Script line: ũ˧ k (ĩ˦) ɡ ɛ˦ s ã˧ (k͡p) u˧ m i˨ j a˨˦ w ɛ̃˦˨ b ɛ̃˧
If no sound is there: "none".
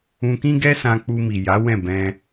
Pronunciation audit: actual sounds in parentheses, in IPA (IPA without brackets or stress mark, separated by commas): ĩ˦, k͡p